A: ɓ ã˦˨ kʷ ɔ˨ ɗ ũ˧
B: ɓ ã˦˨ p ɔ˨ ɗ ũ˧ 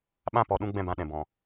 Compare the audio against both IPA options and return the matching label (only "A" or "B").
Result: B